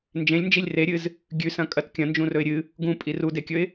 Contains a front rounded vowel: no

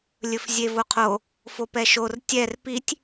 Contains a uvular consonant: yes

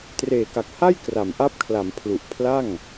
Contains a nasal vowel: no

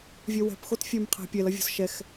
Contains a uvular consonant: yes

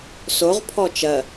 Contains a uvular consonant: yes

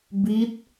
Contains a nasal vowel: no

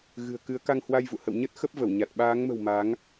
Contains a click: no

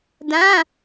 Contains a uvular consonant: no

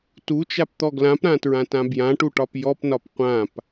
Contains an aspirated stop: no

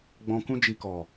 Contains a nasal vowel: yes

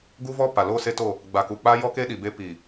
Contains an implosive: yes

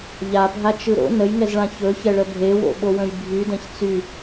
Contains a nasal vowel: yes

